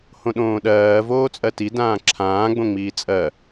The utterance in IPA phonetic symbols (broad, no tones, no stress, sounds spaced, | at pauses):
h õ ɗ õː ɗ ɜː v oː t͡sʼ ɜ t i d ãː ǁʰ ãː ɡ͡b õ ŋ͡m iː t͡sʼ ɜ